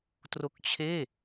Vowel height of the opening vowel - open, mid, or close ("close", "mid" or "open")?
mid